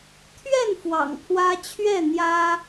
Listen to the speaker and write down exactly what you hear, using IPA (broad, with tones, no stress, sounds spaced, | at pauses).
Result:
t̪ʰ ɥ ɛ˥˨ n f w ɑ̰˨˩ ŋ pʰ w ä˦ t͡ɕʰ ɥ ɛ˥˨ n̪ j ä˦